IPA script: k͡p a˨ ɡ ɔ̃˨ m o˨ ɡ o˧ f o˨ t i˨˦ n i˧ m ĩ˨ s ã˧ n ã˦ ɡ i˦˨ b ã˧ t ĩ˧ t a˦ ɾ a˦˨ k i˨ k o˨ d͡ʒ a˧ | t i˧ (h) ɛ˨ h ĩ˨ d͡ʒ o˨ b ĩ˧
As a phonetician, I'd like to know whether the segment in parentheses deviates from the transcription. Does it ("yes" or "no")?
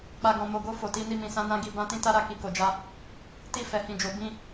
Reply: yes